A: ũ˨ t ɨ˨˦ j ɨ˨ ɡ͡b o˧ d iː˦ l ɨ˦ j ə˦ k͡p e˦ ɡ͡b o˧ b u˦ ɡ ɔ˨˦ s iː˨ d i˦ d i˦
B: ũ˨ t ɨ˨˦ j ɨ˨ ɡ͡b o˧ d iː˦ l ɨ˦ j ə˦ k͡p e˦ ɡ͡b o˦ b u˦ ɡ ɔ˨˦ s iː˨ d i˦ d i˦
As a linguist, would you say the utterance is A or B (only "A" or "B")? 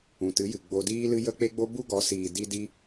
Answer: B